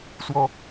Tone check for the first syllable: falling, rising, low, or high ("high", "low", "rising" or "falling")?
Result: high